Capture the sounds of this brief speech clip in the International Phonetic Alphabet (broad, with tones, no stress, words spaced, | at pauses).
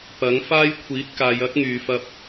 pɐ˨˥ŋfaː˥j kʷʰiː˨˥t̚kaː˨˧j ɐ˥k̚ŋyː˨fɐ˧p̚